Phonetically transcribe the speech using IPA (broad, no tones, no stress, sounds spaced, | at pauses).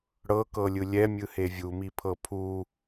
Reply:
ɽ ɤ k ɤ lʲ ɯ lʲ ɛ mʲ ɯ h e vʲ u m i pʰ ɤ pʰ u